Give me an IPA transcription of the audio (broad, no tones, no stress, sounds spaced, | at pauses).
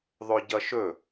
ðˤ ɵ ɟ ʌ ʃ ɵ